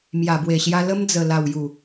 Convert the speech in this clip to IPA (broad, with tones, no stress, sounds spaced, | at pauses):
m j a˨˩ b w e˨˩ ɕ j a˧ l ə˦ m d͡z ə˨˩ l a˨˩ w j u˨˩